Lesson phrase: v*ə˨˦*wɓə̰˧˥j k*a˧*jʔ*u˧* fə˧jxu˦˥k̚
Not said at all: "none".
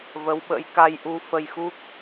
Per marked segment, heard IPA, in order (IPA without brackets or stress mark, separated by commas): ə˨˦, a˧, u˧